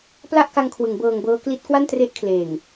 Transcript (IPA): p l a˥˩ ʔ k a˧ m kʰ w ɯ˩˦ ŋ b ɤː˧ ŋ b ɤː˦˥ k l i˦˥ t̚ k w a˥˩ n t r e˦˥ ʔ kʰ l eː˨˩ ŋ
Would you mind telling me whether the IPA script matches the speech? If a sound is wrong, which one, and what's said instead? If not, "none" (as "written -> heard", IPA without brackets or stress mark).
m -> ŋ